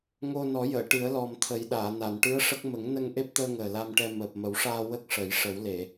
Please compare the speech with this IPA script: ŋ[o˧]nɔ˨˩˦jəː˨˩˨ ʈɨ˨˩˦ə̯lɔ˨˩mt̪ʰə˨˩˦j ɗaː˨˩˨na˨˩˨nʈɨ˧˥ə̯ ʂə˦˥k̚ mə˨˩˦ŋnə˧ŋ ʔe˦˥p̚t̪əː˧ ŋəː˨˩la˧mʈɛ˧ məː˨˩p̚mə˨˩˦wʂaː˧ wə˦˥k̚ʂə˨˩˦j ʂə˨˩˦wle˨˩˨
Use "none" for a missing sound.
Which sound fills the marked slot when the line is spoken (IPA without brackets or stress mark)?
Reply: o˧